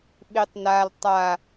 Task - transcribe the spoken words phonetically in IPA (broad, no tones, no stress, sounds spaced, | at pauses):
ɓ i tˤ n a l tˤ a